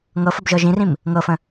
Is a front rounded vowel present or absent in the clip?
absent